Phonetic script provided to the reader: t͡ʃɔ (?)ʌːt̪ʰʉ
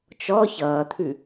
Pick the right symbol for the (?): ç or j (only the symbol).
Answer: ç